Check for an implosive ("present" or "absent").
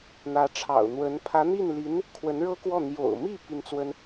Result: absent